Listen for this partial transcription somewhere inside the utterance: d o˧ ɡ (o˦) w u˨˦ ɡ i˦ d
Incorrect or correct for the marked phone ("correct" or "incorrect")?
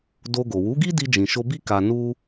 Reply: incorrect